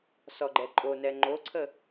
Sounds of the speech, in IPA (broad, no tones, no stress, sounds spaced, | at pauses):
s ɔ ɡ͡ǃ ɛ ǃʼ o n ɛ ŋ͡ǃ o ǀʰ ə